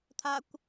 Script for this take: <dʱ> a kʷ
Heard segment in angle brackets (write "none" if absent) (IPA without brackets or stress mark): t̪ʰ